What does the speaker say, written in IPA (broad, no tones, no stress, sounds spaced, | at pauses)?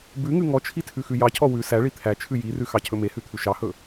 b ʉ ŋ ʉ ŋ ɔ t͡ʃʰ i tʰ ʉ x ʉ j ɑ cʰ ɔ w ʉ s æ ɭ i t̪ʰ æ t͡ʃʰ ʉ j i r ʉ x ɑ cʰ ɵ m e h ʉ t̪ʰ ʉ ʃ ɑ h ɵ